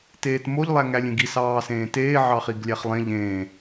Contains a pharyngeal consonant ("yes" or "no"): yes